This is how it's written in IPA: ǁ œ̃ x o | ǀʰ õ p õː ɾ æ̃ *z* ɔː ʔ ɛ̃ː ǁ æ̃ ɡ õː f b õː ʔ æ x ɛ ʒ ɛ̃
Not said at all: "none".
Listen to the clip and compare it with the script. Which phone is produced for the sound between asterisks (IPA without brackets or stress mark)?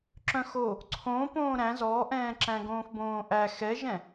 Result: z